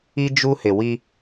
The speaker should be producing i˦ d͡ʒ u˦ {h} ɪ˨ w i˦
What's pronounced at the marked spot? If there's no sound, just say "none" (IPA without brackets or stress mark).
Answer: h